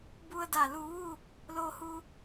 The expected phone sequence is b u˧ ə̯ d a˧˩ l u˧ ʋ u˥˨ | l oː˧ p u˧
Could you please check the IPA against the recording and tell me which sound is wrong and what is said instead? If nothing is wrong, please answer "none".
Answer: p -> h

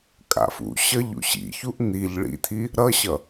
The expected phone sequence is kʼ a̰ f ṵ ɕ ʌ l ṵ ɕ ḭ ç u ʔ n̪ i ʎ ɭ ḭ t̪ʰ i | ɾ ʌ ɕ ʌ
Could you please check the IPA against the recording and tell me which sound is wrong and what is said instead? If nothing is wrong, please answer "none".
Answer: l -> ʎ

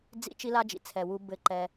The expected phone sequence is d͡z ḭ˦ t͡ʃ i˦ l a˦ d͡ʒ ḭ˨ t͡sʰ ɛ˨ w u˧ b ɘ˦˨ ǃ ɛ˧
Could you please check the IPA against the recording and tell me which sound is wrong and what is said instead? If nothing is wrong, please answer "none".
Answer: none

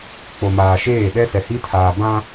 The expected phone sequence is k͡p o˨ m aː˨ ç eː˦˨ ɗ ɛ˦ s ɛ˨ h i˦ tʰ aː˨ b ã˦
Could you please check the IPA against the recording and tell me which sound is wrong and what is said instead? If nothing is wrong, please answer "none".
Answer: ç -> ʃ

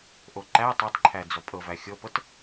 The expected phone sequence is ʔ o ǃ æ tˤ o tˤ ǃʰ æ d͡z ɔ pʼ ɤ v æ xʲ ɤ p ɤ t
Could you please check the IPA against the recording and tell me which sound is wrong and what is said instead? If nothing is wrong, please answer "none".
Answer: none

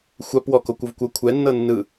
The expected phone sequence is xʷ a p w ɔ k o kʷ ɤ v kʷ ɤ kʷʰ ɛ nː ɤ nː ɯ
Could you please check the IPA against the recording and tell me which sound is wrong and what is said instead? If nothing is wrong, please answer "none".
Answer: none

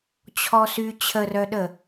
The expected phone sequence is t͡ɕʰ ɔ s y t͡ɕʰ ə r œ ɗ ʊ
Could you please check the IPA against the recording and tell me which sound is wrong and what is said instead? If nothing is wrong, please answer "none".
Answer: ʊ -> ə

